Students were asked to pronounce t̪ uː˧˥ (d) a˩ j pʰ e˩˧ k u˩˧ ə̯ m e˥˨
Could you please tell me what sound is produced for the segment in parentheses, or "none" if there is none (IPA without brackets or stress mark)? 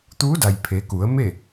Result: d